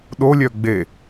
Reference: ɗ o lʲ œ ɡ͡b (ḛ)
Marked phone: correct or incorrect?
incorrect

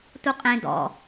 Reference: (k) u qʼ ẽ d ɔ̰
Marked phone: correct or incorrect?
incorrect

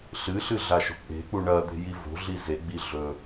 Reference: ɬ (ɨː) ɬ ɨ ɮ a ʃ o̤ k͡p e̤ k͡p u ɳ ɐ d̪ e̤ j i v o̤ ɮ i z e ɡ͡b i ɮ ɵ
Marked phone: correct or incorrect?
incorrect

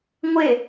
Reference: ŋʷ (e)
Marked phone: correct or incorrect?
correct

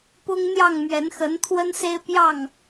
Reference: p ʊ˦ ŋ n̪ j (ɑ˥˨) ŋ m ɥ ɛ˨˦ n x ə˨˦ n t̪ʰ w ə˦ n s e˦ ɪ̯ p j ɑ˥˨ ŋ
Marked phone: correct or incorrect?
correct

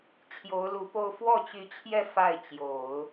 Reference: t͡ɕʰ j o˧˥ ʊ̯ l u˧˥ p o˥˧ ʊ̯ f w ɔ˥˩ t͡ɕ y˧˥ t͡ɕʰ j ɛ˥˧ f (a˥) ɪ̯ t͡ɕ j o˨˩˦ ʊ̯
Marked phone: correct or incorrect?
incorrect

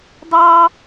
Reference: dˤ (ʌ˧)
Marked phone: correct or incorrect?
incorrect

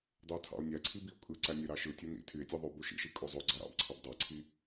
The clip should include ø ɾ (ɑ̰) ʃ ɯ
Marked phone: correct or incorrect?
incorrect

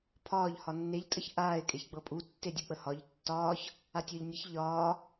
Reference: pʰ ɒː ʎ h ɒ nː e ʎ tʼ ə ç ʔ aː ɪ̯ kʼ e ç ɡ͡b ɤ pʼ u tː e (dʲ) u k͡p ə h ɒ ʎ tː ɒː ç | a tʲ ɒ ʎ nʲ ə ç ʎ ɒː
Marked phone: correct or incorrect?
correct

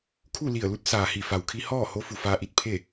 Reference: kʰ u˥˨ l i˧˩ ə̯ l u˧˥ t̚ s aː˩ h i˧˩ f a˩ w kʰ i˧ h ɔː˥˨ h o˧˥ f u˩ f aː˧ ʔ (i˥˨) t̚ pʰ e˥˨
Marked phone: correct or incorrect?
incorrect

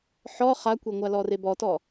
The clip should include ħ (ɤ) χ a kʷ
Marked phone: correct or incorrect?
incorrect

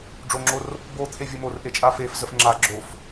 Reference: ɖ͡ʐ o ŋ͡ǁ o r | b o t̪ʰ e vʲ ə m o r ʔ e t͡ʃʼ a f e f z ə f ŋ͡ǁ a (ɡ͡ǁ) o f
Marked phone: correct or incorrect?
correct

